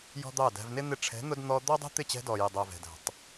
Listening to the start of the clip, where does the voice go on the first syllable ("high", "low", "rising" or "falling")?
high